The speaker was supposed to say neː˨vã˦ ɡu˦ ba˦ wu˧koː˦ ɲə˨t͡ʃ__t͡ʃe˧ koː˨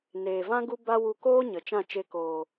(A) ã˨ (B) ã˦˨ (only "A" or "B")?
B